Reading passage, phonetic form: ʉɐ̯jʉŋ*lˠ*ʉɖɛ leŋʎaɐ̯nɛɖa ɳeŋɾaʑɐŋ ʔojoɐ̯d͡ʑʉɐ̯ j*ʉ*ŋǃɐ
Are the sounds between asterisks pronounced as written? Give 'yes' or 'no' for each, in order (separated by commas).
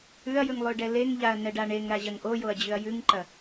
yes, yes